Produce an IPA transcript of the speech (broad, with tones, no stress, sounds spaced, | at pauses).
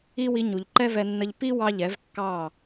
i˦ w i˧ ɲ u˨ ʎ ǃ ɛ˦ v ɛ˧ nː ə˧ ʎ p i˦ w ɑ˦ ʎ ɛ˨˦ v kː ɑ˦˨